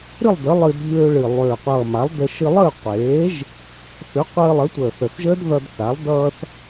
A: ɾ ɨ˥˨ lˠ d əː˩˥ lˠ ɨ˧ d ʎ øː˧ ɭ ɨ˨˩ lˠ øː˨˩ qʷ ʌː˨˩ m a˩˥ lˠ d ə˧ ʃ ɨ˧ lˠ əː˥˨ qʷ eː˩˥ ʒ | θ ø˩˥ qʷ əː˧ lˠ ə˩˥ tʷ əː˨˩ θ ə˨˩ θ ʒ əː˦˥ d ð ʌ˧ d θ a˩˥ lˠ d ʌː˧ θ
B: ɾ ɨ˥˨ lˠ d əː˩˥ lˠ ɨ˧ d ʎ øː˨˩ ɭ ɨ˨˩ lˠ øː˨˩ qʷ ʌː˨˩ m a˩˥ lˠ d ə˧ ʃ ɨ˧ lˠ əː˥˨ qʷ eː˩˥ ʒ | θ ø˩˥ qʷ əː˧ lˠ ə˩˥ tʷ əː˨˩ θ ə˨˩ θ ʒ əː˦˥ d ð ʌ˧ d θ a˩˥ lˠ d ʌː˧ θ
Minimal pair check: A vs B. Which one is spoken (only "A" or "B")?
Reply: A